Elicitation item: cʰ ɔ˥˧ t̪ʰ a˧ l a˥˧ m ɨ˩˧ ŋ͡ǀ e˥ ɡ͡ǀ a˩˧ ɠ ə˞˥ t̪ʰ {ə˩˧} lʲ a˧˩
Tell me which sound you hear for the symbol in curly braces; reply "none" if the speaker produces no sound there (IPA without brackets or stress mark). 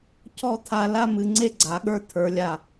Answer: ə˞˩˧